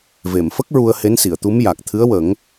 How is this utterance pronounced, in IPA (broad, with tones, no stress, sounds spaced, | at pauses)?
v e˨˩˨ m f ə˦˥ k̚ ɹ u˧ ə̯ h e˧˥ n s i˨˩˨ ə̯ t̪ u˧˥ m j a˨˩ k̚ t̪ʰ ɨ˧˥ ə̯ w ə˨˩˦ ŋ